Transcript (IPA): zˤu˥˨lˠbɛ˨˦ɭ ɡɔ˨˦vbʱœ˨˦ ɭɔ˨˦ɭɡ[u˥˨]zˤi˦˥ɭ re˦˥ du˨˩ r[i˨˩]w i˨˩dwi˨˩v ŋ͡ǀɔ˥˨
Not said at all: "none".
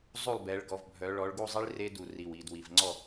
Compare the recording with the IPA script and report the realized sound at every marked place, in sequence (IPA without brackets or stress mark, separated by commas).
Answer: u˥˨, i˨˩